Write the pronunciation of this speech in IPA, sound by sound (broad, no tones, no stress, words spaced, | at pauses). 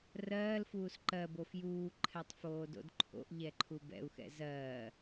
rɜːlfuːs ǃɜbo fjuːǃʰɛtˤ foːdo̰dǃʰo̰ʔʎɛ ǃʰubɛ̰u̯xɛ̰ zɜː